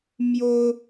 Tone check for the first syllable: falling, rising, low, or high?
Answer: high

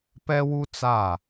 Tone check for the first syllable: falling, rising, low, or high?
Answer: high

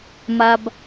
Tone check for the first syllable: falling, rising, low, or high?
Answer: low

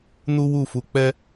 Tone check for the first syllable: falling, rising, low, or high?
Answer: high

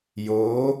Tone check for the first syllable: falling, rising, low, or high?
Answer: rising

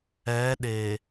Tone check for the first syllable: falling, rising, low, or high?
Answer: rising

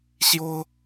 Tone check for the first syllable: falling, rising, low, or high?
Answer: high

